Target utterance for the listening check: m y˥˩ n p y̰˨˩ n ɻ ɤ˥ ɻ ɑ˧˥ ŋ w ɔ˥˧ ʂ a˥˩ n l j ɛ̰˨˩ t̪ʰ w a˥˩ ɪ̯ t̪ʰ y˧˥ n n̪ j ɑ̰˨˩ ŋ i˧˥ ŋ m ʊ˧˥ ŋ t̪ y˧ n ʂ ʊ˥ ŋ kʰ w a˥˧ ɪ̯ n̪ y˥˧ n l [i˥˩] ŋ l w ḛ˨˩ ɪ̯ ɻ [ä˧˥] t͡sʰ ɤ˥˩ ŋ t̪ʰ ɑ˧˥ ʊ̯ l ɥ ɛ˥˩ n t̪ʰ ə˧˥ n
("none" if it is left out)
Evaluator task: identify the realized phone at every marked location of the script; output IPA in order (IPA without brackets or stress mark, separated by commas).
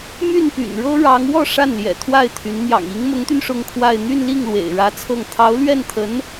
i˥˩, ä˧˥